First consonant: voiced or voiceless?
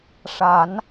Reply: voiceless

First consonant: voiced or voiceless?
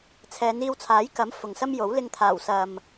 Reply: voiceless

